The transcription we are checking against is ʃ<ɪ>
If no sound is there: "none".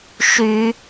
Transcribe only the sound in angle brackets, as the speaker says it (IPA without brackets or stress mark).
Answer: y